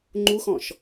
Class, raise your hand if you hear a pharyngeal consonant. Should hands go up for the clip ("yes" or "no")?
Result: no